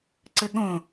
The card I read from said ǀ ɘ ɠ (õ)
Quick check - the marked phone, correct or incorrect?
correct